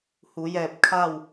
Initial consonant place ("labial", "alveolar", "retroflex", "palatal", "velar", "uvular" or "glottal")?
glottal